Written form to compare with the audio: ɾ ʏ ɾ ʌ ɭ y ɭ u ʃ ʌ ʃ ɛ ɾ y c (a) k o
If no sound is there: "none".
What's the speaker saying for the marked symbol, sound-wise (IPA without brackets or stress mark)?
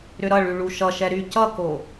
ʌ